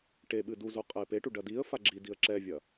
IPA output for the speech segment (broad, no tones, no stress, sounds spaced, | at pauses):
ʈ e ɓ ɨ d u z o qʼ ɛ ɪ̯ p e ʈ u ɖ ɐ d i ə̯ f a ɡ͡ǁ i d i ə̯ ǁ ɛ vʲ ɐ